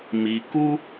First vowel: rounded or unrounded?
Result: unrounded